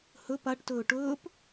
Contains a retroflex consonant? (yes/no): yes